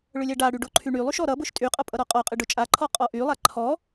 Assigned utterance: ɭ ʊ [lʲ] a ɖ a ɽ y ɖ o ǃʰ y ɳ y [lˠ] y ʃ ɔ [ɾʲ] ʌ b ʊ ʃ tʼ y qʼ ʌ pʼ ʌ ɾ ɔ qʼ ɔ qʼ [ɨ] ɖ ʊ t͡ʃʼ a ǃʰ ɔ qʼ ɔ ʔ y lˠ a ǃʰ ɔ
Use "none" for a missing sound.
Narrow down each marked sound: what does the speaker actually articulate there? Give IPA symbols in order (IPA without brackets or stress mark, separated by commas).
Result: lʲ, lˠ, ɾ, ɨ